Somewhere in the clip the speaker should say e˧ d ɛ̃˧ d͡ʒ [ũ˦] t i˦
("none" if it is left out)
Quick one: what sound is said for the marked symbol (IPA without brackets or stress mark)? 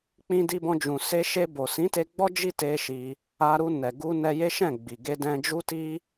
u˦